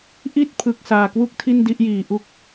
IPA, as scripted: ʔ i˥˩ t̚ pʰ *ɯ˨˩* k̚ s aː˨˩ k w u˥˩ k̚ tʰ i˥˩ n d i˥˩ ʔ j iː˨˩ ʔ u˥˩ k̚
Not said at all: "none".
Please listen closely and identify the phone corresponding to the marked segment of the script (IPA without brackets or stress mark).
ɯ˨˩